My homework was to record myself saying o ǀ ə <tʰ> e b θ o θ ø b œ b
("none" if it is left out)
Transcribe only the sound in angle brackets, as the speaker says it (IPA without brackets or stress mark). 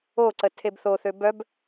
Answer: tʰ